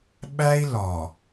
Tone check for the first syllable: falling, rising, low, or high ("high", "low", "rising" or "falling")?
high